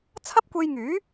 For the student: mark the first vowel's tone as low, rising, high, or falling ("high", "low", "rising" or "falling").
high